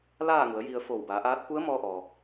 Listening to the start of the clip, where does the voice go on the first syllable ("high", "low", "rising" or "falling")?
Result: falling